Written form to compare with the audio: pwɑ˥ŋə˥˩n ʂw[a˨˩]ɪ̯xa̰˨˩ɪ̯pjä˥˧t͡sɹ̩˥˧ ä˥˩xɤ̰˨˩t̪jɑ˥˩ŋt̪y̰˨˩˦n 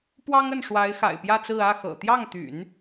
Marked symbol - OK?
no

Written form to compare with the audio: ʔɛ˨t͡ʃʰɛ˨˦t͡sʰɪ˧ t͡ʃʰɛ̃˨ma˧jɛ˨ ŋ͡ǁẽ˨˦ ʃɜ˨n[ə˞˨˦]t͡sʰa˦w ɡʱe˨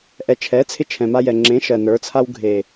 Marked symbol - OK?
yes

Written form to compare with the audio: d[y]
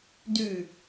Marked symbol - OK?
yes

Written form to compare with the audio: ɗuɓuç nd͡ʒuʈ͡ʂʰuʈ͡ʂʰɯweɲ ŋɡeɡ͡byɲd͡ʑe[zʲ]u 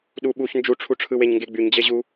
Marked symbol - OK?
no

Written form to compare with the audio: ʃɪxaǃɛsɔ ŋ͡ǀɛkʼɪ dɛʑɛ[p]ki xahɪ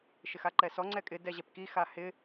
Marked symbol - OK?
yes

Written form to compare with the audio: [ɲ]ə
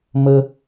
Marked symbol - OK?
no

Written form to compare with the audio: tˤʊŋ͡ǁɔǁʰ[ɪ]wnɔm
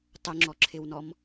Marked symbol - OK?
yes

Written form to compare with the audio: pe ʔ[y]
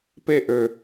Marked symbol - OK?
no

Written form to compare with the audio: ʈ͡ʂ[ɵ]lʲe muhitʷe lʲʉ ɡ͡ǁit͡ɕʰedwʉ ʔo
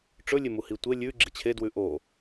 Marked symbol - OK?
yes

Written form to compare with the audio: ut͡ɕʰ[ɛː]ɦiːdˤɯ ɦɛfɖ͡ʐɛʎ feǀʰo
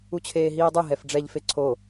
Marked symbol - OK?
no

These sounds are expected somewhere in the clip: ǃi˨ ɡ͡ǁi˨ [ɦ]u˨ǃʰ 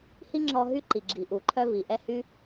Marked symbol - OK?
no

